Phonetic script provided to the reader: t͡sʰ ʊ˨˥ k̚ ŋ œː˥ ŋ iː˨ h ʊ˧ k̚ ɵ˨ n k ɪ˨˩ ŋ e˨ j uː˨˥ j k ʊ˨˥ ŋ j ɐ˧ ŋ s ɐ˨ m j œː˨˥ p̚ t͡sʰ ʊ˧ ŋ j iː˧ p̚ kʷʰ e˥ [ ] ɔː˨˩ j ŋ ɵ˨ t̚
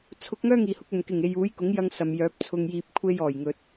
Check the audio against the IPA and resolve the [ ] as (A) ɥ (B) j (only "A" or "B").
B